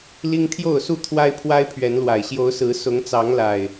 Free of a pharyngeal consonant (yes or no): yes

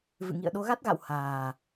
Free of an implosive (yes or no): no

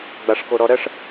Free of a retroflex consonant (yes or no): no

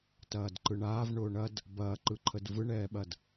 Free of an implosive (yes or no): no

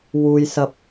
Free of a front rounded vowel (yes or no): yes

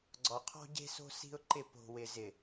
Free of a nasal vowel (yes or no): yes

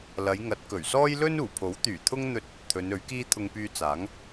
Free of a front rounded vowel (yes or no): no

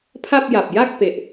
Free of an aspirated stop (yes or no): no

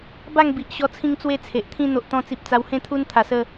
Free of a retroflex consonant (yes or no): yes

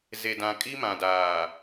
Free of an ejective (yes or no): no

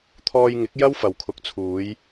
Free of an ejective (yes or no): yes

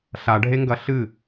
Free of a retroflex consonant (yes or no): no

